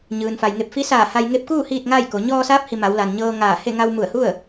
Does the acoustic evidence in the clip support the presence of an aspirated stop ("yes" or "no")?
no